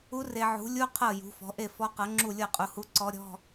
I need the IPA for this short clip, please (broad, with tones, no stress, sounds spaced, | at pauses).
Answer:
u˧˥ r e˨ ʕ ṳ˩˥ lʲ u˧˥˧ qʰ ɤ˥˩ j ṳ˩˥ f ɔ̤˩˥ ʔ e˥˩ f ɔ˧˥ q ɤ˩˥ ŋ͡ǁ u˥˩ lʲ ɤ˥˩ qʼ u˨ h u˧˥ ǀ ɔ˧˥ ɾʲ ɔ̤˧˥˧